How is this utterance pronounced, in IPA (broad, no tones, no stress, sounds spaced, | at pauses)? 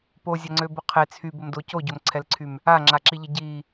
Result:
p o zʲ ɐ ŋ͡ǀ ø b ʊ qʰ e t͡sʰ y b ə m d o c o ɟ o m ǀʰ ɛ l ǀʰ y m | a ŋ͡ǁ a ǁ i ʎ ə ɟ i